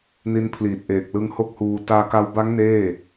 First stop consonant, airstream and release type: aspirated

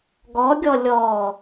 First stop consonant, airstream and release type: plain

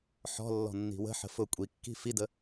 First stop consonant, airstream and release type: ejective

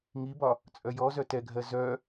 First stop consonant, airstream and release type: plain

